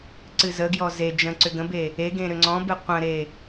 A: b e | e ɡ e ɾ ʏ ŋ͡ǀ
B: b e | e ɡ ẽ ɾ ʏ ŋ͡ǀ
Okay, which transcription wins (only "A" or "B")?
B